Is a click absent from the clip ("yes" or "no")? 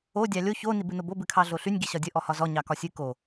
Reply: yes